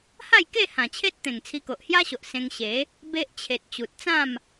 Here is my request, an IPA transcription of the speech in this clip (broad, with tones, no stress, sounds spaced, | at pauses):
h a˥˧ j k e˥˧ h ã˨˩ t͡ɕʰ e˦ t̚ t̪ ẽ˨˩ ŋ t͡sʰ i˧ k o˨ ʔ h j a˦ ɕ o˨ ʔ s ẽ˧ ŋ ɕ e˨˦ | b e˦ ʔ t͡ɕʰ e˨ t̚ t͡ɕ u˨ t̚ t͡s ã˥˧ m